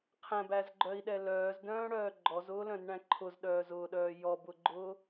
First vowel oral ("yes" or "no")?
no